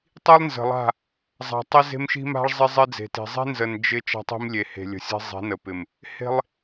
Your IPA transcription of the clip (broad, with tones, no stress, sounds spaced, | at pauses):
tˤ i˦ lˠ n z ə̤˨ lˠ a̤˦˨ | zˤ a̤˨ tˤ i˦ z e̤˦ m ʃ i̤˦ m a̤˦ ɭ zˤ ɪ˦ zˤ ɪ˦ d͡z e̤˨ t i̤˨ zˤ i̤˦ n z ə˨ n d͡ʒ ɪ˦ t͡ʃ a̤˦ tˤ i̤˦ m lʲ e˨ h e̤˨ lʲ ə̤˨ sʲ e̤˦ zˤ i̤˨˦ n ə˨ p ɪ˨ m | h e̤˦ lˠ